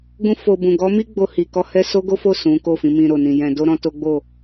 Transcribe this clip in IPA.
ɡ ũ˧ f o˨ b ũ˨ ɡ ɔ˨˦ m i˦ ɡ͡b o˧ h i˨ k ɔ˧ h ɛ˧ s o˦ ɡ o˦ f o˦˨ s ũ˨˦ k o˦˨ f ĩ˨˦ m ĩ˧ ɾ o˨ n ĩ˨ j ɛ̃˧ d o˦ ɾ ɔ̃˦ t o˦ ɡ͡b o˦˨

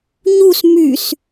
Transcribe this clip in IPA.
ɲ u s m y s

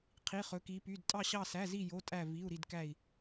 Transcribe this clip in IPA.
qʰ i˧˥˧ χ ɵ˧˥ k i˧˥ p y˧˥˧ d tʼ ɑ˥˧ ɕ ɑ˥˧ s æ˧˥˧ z i˥˧ j o˧˥˧ tʼ æ˥˧ v i˧˥˧ u̯ ɾ i˥˧ d k æ˥˧ i̯

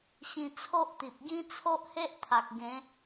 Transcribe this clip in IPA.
ɕ ĩ˧ t͡sʰ o˦ ʔ t̪ i˨ p̚ ɡ ĩ˦ t͡sʰ o˦ ʔ h e˦ ʔ t̪ʰ a˨ k̚ ɡ ẽ˨˦

